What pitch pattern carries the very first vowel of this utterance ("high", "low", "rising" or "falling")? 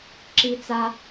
high